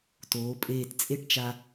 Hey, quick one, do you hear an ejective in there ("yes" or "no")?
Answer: yes